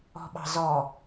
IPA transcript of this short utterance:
ɔ̤ɓɑ̤zɔ

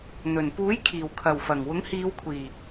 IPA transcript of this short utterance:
n̪ɵ˨˩n puː˨˥jkʰiː˨˩w kʰɐ˨˩wfɐ˨˩ŋwʊ˨˥ŋ hiː˨˧wkʷʰiː˨˩

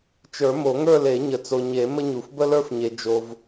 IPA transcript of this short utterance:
t͡ʃə˞˨˩˦mo˨˩˦ŋə˞˥˧le˨˩˦ ɲə˨t͡so˨ɲe˨˩˦ mə˥ɲu˨f bə˥lə˞˥fɲe˨ d͡ʒo˨v

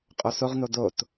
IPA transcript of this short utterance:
qʼosoʁno dot

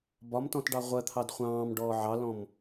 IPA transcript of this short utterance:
bɒmtɔ̃t ɖɑʁʷɜt̪ʰɑd χʷɑ̃ːm ɖɔːʕɑlɔ̃m

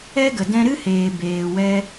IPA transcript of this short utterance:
ɛ˦ɡə˨ dɛ̃˧ɾɨ˦heː˨ beː˨wɛ˧

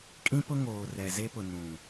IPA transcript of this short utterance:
kʼĩ˦pʊ˦ ŋoː˨rɛ˨ze˦pʊ˨ nũ˨

